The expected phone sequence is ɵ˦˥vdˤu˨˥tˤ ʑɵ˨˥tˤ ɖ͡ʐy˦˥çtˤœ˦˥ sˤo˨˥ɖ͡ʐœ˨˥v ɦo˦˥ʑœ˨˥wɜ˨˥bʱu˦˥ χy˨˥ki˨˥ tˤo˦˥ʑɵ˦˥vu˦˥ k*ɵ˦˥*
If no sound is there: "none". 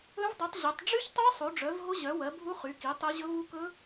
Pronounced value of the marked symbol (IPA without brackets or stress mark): ɵ˦˥